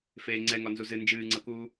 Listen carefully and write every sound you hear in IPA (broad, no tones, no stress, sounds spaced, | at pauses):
f eː ŋ͡ǀ ɛ ŋ ɒ n z u z ɨ n d͡ʒ ɨː ŋ͡ǀ ɤ k uː